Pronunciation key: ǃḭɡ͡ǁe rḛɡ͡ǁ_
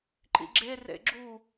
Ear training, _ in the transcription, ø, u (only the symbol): u